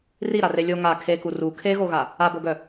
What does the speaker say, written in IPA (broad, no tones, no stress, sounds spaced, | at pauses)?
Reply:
r i ɾ a r e lʲ o ŋ a kʰ e k u r u kʰ e ɣ o ɣ a | a b o ɡ œ